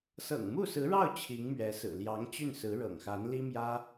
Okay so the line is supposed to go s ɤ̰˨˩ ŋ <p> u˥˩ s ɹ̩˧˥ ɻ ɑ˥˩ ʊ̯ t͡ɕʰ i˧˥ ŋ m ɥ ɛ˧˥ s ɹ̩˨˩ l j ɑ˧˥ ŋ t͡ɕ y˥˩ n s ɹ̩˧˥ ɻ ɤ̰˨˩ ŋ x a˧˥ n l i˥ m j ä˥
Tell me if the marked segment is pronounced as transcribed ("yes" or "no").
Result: no